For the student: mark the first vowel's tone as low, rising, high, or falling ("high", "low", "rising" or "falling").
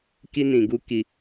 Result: high